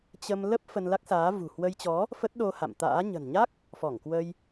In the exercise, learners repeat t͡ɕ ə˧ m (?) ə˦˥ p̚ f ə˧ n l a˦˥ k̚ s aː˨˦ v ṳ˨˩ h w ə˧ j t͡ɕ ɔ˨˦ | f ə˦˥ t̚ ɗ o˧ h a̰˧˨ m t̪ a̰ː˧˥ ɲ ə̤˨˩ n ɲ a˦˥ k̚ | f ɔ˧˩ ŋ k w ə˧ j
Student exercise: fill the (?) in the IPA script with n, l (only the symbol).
l